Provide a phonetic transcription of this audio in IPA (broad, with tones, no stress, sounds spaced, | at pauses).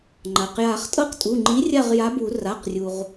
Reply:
ŋ͡ǃ a˩ q j a˨˩˦ χ tʼ ɤ˦˨ q tʼ u˩˧˩ ŋ͡ǃ i˨˥ rʲ a˦˨ ʁ j a˨˥ b u˨˩˦ r a˩˧˩ q rʲ u˩ ʁ